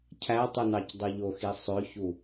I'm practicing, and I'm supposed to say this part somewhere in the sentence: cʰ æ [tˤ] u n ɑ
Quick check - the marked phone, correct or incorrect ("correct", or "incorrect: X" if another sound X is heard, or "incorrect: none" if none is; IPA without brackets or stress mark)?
correct